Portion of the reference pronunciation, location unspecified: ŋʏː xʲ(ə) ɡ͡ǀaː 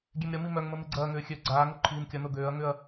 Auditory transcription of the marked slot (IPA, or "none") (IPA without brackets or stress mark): ø